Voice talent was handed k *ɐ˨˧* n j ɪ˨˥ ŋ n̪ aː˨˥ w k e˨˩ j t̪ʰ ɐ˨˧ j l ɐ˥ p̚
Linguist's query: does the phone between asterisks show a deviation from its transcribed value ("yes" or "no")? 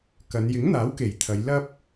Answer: no